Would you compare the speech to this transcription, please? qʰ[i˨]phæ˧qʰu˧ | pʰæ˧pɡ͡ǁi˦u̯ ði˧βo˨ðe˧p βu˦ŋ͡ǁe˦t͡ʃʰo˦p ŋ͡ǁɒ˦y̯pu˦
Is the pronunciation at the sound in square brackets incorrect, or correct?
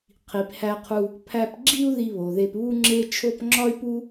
correct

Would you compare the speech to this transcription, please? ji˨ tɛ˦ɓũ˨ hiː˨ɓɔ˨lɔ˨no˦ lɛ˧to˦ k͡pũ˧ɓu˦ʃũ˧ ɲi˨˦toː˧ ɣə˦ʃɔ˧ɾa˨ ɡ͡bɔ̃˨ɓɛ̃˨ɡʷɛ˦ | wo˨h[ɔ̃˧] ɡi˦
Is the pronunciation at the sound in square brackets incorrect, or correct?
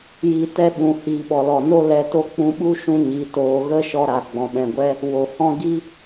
incorrect: ɔ̃˦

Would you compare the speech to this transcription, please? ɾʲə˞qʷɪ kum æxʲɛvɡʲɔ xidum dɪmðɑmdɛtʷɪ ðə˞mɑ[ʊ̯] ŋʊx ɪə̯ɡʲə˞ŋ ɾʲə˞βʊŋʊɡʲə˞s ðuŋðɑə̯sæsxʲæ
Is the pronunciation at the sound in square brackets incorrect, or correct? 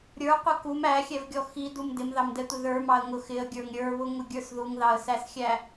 incorrect: ə̯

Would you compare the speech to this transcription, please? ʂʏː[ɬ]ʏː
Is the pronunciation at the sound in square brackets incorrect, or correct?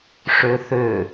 incorrect: θ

